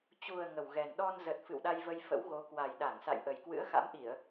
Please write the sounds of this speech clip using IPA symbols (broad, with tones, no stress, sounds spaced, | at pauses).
t͡ɕ u˨˩ ə̯ ŋ ə˨˩ w ɣ ɛ˨˩ n ɗ ɔ˧ n z ə˨˩ t̚ f ɨ̰˧˨ w ɗ a˧ j v ə˧ j f ə̰˧˥ w ɣ o˨˦ k w a˨˩ j ɗ a˧˩ ŋ s a̰˧˨ j ʔ ə˨˩ j k w ɨ̰˧˥ ə̯ x a̰˧˥ m ʔ i˧˩˨ ə̯